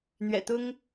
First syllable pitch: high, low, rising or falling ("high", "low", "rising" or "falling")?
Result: low